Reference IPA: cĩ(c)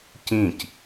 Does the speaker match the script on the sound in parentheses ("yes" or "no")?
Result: yes